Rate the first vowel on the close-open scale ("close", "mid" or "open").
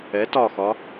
mid